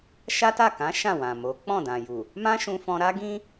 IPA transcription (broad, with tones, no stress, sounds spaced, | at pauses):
ʃ a˦ t a˦˨ k ã˨˦ ʃ ã˦˨ w ã˨ m o˨˦ k͡p ɔ̃˦˨ d ã˨ j u˨ | m ã˦ ʃ ũ˧ f ɔ̃˧ ɾ a˦ ɡ ĩ˦